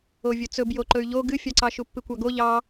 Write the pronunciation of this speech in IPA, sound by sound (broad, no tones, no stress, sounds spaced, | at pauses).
o vʲ ɵ t͡s ɵ b j o ǃ ɵ y̯ ʎ o ɡ ɨ fʲ ɑ ǀ ɑ ʃ u pː ɨ kʷ ɑ ɡ o ʎ ɑ